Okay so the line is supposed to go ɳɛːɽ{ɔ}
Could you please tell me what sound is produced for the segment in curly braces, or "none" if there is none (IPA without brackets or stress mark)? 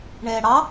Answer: ɑ